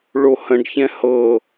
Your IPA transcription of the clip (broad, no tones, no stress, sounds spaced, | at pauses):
ɭ o h ə̃ ɖ ç ɛ̃ h ɤ